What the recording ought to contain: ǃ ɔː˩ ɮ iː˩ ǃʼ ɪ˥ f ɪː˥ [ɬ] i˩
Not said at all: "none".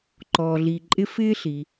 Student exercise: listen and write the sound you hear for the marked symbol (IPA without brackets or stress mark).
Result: ɬ